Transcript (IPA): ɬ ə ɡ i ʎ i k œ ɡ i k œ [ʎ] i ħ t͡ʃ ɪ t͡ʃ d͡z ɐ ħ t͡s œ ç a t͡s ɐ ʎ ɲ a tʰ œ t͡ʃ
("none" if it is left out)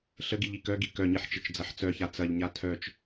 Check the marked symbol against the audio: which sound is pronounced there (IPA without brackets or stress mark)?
ɲ